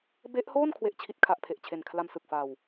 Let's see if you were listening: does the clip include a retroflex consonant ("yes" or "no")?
no